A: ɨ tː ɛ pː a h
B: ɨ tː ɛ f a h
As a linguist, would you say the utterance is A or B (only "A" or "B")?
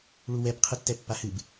A